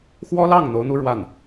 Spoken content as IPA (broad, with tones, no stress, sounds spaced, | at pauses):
x w ɔ˥ l ɑ˥˩ ŋ n̪ o˧˥ ʊ̯ n̪ u˥ ɻ w a˥˩ n